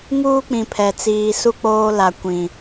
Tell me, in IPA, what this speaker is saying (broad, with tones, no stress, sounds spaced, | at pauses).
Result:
ŋ uː˦ k͡p ĩ˨ pʰ ɛ˨ t͡s iː˨ s u˦ k͡p oː˦ l a˨ kʷ ĩ˨